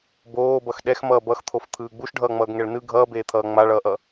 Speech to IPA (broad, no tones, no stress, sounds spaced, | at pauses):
b oː b ʌ x ɗ ɛ x m ʌː b ʌ x t̪ʰ o f t̪ʰ ɯː ɡ͡b u ʃ ɖʱ ʌː ŋ͡m ʌː ɡ ŋ ɛ ɭ n ɯ ɡʱ ʌː b eː t̪ʰ ʌː ŋ͡m a ɭ ʌː ʔ ʌ